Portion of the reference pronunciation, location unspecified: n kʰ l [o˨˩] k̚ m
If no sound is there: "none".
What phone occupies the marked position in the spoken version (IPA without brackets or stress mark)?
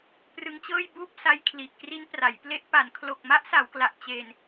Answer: o˨˩